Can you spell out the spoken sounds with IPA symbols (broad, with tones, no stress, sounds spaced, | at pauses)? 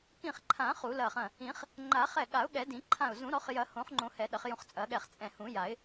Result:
k ĩ˧˩ χ ǃʰ ã˨˩˦ χ u˨˩˦ l ɐ˧˩ χ ɐ̃˧˩ | ĩ˨˩˦ χ | ŋ͡ǃ a˨˩˦ χ ɛ˧˩ ɠ a˨˩˦ ʊ̯ ɠ ɛ˨˩˦ d ĩ˨˩˦ ǃʰ ã˧˩ ʊ̯ z ũ˨˩˦ ɾ ɔ˨˩˦ χ j ɐ˨˩˦ h õ˨˩˦ χ ŋ͡ǃ õ˨˩˦ h ɛ˨˩˦ ɗ ɐ˨˩˦ χ j ũ˧˩ χ t͡sʼ ɐ˨˩˦ ɠ ɛ˧˩ χ t͡sʼ ɛ̃˧˩ h ũ˨˩˦ j a˨˩˦ ɪ̯